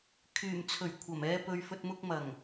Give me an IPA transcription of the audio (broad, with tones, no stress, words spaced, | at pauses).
kʰyː˨˩mt͡sʰɵ˨˩ɥ kʷʰɐ˨˩mɛː˧pɵ˨ɥ fɵ˨t̚mʊ˧k̚mɐ˨˩ŋ